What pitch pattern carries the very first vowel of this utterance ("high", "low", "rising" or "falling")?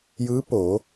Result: rising